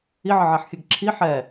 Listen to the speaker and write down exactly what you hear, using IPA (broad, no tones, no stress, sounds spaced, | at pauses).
i ʕ ə ʕ a ħ xʲ ɘ ɡ ǁʰ i ħ ɛ